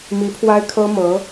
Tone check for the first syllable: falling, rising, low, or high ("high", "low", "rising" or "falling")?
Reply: rising